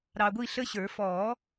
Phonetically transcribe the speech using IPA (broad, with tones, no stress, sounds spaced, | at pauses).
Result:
ɾ ɑ˨ ɡʷ i˦˨ ɬ ə˦ ɕ ə˞˨˩˦ f ɔː˨˩˦